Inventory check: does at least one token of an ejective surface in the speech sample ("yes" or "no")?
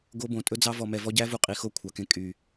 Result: yes